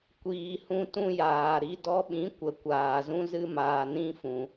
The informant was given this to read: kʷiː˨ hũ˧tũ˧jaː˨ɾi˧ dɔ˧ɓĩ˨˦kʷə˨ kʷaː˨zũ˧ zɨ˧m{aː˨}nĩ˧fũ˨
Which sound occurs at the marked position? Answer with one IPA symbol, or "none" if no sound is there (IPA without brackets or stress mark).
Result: aː˨